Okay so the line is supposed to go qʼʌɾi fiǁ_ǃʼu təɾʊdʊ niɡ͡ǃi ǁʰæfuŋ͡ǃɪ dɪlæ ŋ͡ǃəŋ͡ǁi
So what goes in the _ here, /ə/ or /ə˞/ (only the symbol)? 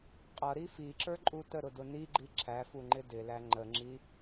ə˞